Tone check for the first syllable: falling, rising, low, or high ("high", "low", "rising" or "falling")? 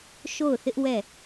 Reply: falling